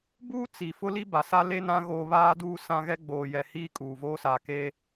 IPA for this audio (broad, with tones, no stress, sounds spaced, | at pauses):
b uː˦ t͡s i˨ f ʊ˦ l i˦ b a˨ s a˦ l e˦ n ã˦ ɣ oː˦ β aː˦ d uː˦ s ã˦ ɣ ɛ˦ ɡ͡b oː˨ j ɛ˨ h iː˦ kʼ uː˨ v oː˦ s aː˨ k e˦